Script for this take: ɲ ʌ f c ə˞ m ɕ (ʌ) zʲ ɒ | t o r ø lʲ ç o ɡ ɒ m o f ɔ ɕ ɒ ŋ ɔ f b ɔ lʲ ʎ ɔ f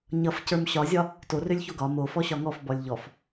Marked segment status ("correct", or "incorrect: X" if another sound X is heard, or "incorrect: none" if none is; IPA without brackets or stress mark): incorrect: ɒ